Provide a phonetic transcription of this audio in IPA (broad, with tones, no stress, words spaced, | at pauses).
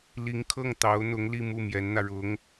li˧˥ŋkʰɤ˥˩ŋt̪ɑ˧˥ʊ̯n̪ʊ˧˥ŋ li˥˧mu˥˩mjɛ˧˥nn̪ä˧ ɻʊ˧˥ŋ